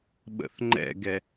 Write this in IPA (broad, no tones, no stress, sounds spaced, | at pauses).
ɓ ə̰ θ ŋ͡ǃ ɛ̰ ɡ ɛ